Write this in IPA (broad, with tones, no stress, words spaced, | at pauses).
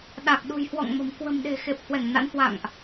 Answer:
ɗa˨˩k̚ ɗṳ˨˩jhwɔ̰˧˨ŋ mə̤˨˩m kwə̤˨˩mɗe̤˨˩ xe˨˩p̚hwɛ˧˩ŋna̰˧˥nhwa̰˧˨ŋʔ